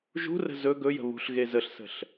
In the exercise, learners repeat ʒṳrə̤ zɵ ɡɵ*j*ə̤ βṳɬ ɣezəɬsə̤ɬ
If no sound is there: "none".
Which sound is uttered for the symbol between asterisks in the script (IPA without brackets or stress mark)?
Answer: j